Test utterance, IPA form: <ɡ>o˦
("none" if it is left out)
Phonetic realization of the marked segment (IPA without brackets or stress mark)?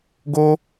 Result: ɡ